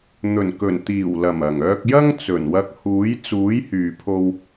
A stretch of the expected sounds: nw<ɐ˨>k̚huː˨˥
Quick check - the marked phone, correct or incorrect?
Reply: incorrect